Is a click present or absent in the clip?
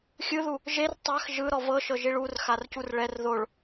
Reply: absent